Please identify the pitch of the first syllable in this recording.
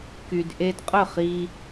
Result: low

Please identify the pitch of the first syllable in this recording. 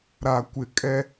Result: low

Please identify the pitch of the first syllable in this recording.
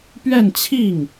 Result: falling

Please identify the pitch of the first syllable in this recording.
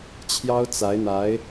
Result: high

